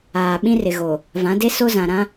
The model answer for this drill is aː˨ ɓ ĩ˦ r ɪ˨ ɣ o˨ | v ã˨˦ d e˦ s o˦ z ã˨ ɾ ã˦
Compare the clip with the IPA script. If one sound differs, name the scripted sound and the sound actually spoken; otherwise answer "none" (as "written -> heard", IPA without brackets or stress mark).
none